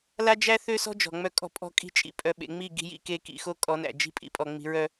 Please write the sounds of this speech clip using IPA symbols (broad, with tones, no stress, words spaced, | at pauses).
la˦d͡ʒæ˦ θø˦sɔ̤˦ d͡ʒɔ̤˨ŋ͡mœ˦ kʼɔ̤˨ pʼɔ̤˦kʼi̤˦t͡ʃʼḭ˦ pʼœ˨ɓḛ˨ŋ͡mi˦˨ ɡi̤˦jḭ˦ke˦kḭ˨ xo˦kʼɔ˨˦næ̰˨ d͡ʒi̤˦pʼḭ˦pʼɔ˨ŋ͡mi̤˨ ɹœ˨